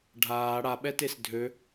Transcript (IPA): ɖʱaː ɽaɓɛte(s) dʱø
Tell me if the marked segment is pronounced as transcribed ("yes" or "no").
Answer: yes